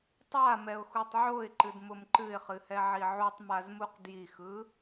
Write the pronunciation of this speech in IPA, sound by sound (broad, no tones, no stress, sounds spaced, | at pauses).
tˤ a m ɛ ʊ̯ x u tˤ ʕ o ɪ̯ ǃ ɨ d m ʊ m ǃ ɨ ɪ̯ χ ɨ h ɛ ʕ i ʕ u tˤ m a z m u q d j i x ɯ